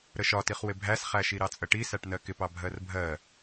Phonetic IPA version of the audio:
ɾ ə ʃ ɒ t i χ w ɪ bʱ æ s χ æ ʃ i ɾ ɑ t͡sʼ ə ʈ i s æ ʈ n ɜ k ɪ p ɑ bʱ ɜ r bʱ ɜ

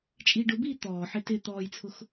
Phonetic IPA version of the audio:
t͡ʃʼ iː ɖ ʊ b iː t̪ ɔː ħ ɪ t ɪ t̪ ɔː j t͡sʰ ʊ x

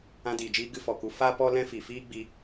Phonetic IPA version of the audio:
ã˧ d iː˨ d͡ʒ iː˦ ɡ ɨ˧ f ɔ˨ k u˧ f a˦ p ɔ˦ l ɛ̃˦ f i˨ f iː˦ ɡ͡b i˧

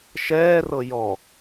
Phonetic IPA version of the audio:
ʃ ɛː r ɤ j ɔ

